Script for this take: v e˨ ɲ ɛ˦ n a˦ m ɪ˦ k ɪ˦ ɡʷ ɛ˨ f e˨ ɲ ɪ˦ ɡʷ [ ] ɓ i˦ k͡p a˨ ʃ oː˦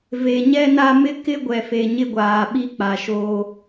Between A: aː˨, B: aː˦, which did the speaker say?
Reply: A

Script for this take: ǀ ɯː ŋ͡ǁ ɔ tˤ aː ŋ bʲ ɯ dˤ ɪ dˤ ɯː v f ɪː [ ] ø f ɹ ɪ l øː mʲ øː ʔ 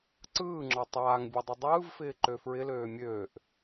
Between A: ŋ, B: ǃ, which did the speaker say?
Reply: B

